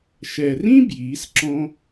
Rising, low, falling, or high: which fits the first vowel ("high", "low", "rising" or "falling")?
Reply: low